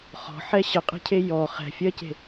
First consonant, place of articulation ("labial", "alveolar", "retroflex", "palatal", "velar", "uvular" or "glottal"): uvular